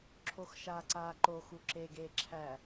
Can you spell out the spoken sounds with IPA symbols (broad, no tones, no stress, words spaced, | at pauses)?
ǁʰoxʃaːǀaːǃo xuǁeɡeː ǁʰæ